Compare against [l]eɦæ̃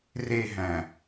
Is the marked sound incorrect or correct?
incorrect